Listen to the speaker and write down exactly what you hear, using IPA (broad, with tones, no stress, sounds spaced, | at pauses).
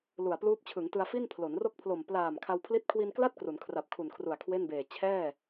l u˨˩ a̯ p l uː˦˥ p̚ t͡ɕʰ ɯ˩˦ ŋ t ɯ˧ a̯ f i˥˩ n pʰ l o˩˦ n r o˥˩ k̚ pʰ l o˨˩ m p l aː˨˩ m kʰ a˧ w pʰ l i˦˥ t̚ kʰ w i˧ n k l a˥˩ t̚ k r u˩˦ n kʰ r a˨˩ p̚ kʰ u˨˩ n kʰ r u˨˩ a̯ kʰ w e˥˩ n b eː˨˩ t͡ɕʰ ɛː˥˩